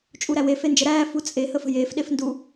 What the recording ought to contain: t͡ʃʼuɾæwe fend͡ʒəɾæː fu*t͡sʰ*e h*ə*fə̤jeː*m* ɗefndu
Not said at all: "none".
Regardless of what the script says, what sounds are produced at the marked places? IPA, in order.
t͡sʼ, ə, f

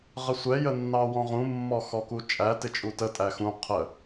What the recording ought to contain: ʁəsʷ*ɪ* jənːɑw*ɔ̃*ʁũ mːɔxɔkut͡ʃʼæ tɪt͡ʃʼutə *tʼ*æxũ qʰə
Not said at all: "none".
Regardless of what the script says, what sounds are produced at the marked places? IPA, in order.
ɛ, ɔ̃, tʼ

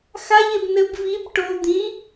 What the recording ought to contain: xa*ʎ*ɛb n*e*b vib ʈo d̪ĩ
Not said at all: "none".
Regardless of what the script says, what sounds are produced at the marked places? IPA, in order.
ʎ, ɘ

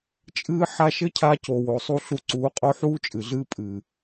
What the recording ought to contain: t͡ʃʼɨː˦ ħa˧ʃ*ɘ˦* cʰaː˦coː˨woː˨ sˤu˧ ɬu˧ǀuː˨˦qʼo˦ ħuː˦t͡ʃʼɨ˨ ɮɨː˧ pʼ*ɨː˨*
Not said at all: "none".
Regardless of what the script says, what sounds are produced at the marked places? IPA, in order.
ɘ˦, ɨː˨

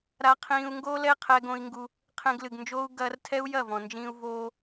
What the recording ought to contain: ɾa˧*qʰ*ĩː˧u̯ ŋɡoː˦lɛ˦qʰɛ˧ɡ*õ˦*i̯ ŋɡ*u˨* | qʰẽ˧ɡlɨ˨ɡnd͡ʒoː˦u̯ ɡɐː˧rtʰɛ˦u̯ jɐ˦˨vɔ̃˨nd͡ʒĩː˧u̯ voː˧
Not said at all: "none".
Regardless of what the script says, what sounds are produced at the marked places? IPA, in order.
qʰ, õ˧, u˧

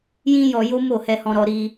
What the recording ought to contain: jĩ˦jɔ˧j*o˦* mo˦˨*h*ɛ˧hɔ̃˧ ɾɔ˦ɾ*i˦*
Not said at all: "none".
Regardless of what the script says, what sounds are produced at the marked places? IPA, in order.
o˦, h, i˦

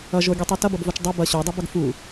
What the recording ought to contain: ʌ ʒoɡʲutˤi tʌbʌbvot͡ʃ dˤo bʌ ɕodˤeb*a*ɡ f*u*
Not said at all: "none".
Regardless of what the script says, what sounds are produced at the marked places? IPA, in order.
ʌ, u

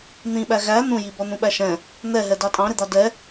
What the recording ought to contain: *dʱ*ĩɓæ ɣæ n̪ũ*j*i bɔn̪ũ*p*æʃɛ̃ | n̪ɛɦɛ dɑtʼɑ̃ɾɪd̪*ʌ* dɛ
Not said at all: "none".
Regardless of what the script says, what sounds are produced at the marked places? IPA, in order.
n̪, j, ɓ, ɑ

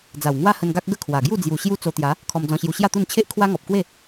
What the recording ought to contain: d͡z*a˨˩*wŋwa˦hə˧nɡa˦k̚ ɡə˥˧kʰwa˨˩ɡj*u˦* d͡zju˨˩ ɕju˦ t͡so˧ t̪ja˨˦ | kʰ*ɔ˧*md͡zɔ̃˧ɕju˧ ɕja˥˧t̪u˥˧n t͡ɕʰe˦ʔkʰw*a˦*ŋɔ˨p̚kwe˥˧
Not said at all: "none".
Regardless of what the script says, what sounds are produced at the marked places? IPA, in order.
a˨˩, u˥˧, ɔ˧, a˦

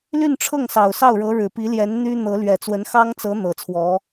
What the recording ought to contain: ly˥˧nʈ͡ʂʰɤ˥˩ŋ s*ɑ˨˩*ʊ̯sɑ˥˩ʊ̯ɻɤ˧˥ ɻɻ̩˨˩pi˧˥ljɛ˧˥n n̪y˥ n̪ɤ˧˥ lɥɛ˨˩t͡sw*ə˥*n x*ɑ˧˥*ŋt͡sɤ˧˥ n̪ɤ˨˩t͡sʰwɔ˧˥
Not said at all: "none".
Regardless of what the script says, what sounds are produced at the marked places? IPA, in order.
ɑ˨˩, ə˧˥, ɑ˥

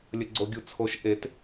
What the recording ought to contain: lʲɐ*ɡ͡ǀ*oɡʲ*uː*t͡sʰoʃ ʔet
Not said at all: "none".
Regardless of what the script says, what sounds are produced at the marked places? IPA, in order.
ɡ͡ǀ, u

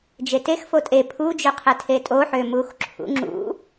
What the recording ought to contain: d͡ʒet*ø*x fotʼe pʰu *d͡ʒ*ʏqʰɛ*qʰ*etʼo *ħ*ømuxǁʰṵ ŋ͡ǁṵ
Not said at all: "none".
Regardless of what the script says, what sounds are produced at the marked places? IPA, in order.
e, d͡ʒ, tʰ, ħ

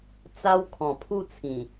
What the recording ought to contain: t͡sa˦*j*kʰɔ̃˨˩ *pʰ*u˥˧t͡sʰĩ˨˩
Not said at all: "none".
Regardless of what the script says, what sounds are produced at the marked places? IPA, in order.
w, pʰ

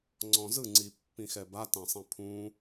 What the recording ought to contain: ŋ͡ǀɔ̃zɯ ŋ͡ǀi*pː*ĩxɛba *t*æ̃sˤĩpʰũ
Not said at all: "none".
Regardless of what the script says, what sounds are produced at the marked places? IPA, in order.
pː, t

